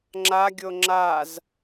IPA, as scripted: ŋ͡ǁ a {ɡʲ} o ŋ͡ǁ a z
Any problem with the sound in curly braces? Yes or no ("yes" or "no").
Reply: no